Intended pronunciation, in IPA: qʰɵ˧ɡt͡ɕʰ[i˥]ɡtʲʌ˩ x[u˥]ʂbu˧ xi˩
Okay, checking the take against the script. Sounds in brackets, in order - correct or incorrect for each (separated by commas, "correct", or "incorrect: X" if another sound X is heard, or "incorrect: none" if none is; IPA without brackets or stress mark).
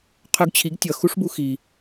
incorrect: i˩˥, correct